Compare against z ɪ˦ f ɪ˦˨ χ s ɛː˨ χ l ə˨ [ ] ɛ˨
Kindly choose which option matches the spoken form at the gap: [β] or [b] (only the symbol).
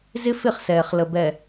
b